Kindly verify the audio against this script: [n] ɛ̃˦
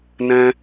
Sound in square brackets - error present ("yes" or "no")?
no